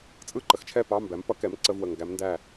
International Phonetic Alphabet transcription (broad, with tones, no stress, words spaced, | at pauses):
t͡sʼɯ˥˨ ǃə˩˥xt͡ʃʰɛ˥˨pɑ˧˥˧ mbæ˩˥mpʌ˩˥kɛ˩˥m ǀə˧˥˧vwə˨ŋ ɡæ˧˥mndæ˥˨